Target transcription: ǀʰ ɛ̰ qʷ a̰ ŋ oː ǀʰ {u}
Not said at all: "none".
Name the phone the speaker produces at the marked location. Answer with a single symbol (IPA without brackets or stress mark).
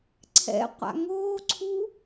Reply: u